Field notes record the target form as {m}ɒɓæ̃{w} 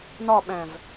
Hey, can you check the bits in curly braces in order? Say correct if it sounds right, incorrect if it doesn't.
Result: incorrect, incorrect

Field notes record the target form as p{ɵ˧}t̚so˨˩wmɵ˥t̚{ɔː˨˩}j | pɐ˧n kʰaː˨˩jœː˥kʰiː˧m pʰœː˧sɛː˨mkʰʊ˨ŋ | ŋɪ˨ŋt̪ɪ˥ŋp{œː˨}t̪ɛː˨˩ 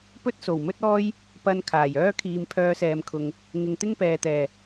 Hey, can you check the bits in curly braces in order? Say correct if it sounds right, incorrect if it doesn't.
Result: incorrect, incorrect, incorrect

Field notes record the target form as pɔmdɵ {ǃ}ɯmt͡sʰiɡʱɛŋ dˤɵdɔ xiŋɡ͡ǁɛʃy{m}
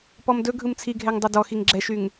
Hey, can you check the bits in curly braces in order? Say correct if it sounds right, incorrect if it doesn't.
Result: incorrect, incorrect

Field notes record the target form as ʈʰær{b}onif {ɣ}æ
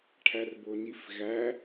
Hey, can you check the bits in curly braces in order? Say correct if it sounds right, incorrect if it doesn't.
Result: correct, correct

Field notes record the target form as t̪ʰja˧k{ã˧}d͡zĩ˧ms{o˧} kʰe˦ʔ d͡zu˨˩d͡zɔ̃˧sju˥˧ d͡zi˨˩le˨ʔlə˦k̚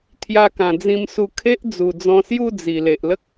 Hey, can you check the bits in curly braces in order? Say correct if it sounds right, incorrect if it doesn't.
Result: incorrect, incorrect

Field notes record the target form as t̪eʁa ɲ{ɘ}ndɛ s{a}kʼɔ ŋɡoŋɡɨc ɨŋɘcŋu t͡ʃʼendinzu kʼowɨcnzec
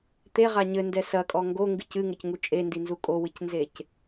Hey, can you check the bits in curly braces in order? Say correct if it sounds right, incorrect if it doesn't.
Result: correct, incorrect

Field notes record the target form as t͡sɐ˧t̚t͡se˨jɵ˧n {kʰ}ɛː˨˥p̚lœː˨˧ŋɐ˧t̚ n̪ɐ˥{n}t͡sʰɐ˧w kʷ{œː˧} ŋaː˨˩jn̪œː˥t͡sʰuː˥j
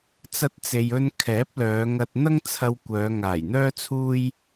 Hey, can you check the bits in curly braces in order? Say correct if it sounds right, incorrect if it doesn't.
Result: correct, incorrect, incorrect

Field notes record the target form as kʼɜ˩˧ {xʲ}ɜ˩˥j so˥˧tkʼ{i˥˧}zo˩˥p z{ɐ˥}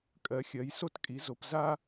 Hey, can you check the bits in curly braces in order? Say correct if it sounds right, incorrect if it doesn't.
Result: correct, incorrect, incorrect

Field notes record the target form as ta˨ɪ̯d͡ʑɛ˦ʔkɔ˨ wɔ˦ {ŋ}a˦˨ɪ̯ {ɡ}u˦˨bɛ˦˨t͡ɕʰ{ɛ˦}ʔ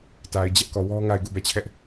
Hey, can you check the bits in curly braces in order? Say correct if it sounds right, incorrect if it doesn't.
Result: correct, correct, correct

